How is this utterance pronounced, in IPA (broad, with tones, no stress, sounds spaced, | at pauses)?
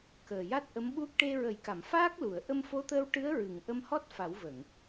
k əː˨˩ j a˦˥ t̚ ʔ ə˧˥ m ɓ u˦˥ k̚ ʈ e˧ ɹ ə˨˩˦ j k a˨˩˨ m f aː˦˥ k̚ l u˨˩˨ ə̯ ʔ ə˧ m f o˧˥ t̪ əː˧ w ʈ ɨ˧˥ ə̯ ɹ ɨ˨˩˨ ŋ ʔ ə˧ m h ɔ˦˥ t̚ f a˨˩˦ w v ə˨˩˨ ŋ